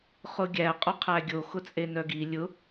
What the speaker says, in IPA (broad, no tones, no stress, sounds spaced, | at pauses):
χ ʊ ɡʲ æ qʼ ʊ qʰ æ ɡʲ o x ʊ t͡sʼ e n œ ɡ i lʲ ʊ